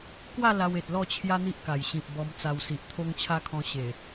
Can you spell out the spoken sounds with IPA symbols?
k w a˥˧ l a˧ w e˨ t̚ l ɔ˥˧ t͡ɕʰ j a˦ n̪ i˦ ʔ k a˨˩ j ɕ ĩ˨ p̚ b ɔ˧ m t͡s a˧ w s i˨ ʔ t̪ʰ o˦ ŋ t͡ɕʰ a˦ kʰ ɔ̃˧ ɕ e˨˩

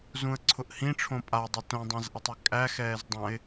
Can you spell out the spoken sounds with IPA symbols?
z ũ ə̯ ǀʰ ʊ ʔ h ĩ ʈ͡ʂʰ õ pʼ a dˤ i t õ dˤ ã z ʔ ɛ tˤ ɘ kʼ æ x ɛː z dˤ ã ɪ̯

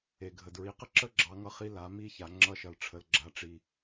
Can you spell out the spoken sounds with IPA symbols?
e˩ ɡʱ ə˩ d ɹ i˩˧ q ə˥ ǁ ə˥ ɡ͡ǁ ɑ˧˥ ŋ ʌ˥ χ i˧˥ l a˩˧ m i˥ ç a˩˧ ŋ͡ǁ ʌ˧˥ ʃ ʌ˩˧ l ʈ͡ʂʰ ə˩ l ɡ͡ǁ a˩˧ ʈ͡ʂ i˩

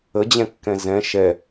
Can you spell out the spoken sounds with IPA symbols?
ə d͡ʑ ɛ̃ kː ɛ̃ z ɛ̃ ʃ ɛ

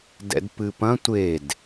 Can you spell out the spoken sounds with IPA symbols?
d ɛ̰ d p ɨ p ɐ̃ tʷ e d

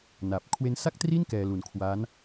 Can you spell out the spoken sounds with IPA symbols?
n a˨˩ p̚ kʰ w e˦˥ n s a˥˩ k̚ t r i˥˩ n k ɛː˧ l u˨˩ n kʰ w aː˦˥ n

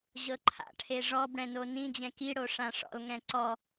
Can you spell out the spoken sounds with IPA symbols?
ʑ ɤ ǃʰ a̰ ʈʰ e ʐ ɔ b ɽ ɛ̃ n o n ĩ d͡ʑ ɛ̃ k i ɽ o ʂ ã ʂ ɔ̰ l ŋ ɛ̃ ǀ ɔ

